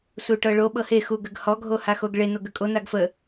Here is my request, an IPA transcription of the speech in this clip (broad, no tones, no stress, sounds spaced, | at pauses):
s u ʈ ɤ ɭ o ɓ ɤ h e x u ɡ ə ɡ h ɔ ɡʱ o h a x o ɡ ɭ e n o ɡ ə kʼ o n a ɡ f ə